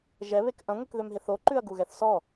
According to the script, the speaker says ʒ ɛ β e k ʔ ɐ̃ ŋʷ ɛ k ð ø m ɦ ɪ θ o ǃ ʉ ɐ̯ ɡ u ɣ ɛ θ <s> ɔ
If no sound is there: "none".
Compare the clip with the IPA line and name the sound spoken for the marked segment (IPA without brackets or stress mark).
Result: s